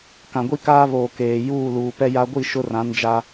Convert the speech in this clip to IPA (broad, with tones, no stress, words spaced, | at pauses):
kã˨ɡʷi˦kaː˦βoː˨ keː˨ juː˦˨luː˨pɛ˦ja˦ ɡʷi˦˨ ʃʊ˦rã˨˦n d͡ʒa˦